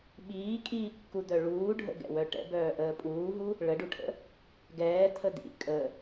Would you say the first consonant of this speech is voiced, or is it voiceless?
voiced